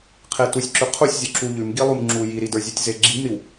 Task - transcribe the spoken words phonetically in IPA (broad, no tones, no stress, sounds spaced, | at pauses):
qʰ e t u sʲ ǁ ʉ qʰ u sʲ zʲ u ǁ u ʎ ʉ m ɡ i lˠ u m ŋ͡ǁ u j i ɾ i d ə˞ zʲ u tʲ z e ɡ͡ǁ i m ɾ i w